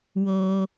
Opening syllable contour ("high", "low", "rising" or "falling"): low